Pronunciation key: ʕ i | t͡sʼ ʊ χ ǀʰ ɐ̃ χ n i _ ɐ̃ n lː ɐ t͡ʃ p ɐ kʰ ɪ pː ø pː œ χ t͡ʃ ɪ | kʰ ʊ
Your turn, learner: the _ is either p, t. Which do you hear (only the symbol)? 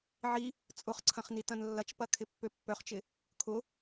t